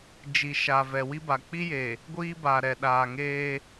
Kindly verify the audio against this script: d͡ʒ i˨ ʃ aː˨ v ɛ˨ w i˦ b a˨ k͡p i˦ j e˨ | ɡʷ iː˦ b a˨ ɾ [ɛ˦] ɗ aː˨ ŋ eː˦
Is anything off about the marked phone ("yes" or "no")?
yes